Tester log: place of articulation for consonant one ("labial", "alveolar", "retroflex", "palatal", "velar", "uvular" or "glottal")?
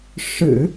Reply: retroflex